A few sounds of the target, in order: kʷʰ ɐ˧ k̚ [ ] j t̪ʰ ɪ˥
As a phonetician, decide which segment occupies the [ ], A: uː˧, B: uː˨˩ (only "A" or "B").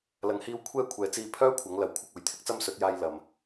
B